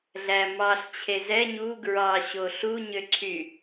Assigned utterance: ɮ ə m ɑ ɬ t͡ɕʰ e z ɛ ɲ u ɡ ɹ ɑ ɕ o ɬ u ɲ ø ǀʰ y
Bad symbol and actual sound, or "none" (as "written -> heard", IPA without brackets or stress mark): ə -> æ